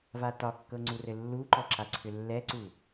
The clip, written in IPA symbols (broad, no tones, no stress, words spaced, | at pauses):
vatɒkːɤ ŋ͡ǀurɘlːuǃɔ ǁaǀʰʏlːɛǀu